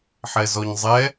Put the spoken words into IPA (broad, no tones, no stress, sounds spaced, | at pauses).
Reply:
ħ ɛ z ɔ ɲ zˤ ɛ